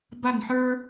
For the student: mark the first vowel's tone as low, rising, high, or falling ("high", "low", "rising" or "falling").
falling